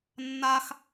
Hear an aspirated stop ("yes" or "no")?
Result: no